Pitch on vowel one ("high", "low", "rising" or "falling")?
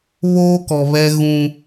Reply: high